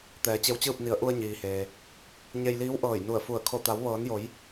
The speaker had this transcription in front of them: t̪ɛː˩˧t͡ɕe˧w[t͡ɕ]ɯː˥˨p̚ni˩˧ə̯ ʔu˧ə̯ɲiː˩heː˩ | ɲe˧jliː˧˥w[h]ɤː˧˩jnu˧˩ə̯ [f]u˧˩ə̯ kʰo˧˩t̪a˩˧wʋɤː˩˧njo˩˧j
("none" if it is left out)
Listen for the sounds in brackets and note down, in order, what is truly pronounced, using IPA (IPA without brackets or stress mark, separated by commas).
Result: t͡ɕ, ʔ, f